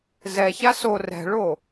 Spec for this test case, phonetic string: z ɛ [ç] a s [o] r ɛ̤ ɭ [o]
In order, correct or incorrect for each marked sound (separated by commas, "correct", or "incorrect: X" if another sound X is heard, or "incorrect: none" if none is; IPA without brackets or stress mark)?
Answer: correct, correct, correct